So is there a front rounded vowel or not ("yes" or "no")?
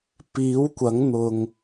no